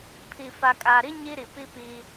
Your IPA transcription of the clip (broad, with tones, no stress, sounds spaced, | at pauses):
pʰ i˨ f a˨ kʼ a˨ ɾ i˦ ɲ i˦ ɾ i˨ p i˦ p iː˦